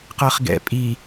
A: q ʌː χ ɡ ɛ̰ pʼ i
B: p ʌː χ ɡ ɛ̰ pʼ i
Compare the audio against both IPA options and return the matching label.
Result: A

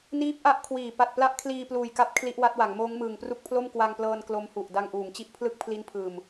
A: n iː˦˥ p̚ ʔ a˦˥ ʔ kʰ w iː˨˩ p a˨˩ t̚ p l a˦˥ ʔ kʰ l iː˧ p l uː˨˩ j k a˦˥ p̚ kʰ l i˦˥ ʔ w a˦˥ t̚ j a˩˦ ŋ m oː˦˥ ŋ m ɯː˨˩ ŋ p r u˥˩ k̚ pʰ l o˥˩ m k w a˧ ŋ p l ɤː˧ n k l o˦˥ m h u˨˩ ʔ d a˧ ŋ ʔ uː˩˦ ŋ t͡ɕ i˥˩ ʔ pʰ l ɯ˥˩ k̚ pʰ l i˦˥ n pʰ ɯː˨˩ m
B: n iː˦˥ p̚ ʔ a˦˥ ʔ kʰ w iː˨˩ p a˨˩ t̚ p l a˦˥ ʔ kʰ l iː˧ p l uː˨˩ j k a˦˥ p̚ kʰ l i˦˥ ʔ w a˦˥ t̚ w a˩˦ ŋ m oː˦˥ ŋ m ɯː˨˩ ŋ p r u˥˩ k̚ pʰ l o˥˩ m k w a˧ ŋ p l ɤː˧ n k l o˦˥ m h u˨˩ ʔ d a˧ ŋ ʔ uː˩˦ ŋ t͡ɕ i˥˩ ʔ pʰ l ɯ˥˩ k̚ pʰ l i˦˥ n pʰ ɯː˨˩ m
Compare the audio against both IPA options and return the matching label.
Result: B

